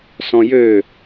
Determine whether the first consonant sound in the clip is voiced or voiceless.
voiceless